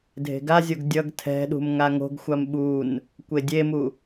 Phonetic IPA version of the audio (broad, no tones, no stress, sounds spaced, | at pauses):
dʱ e̤ ɡ a zʲ o ɡ dʲ ʌ ɡ tʰ ɛ̤ ɗ ṳ m ŋ a ŋ o̤ ɡ xʷ a m ɓ u n | kʷ e dʲ e m u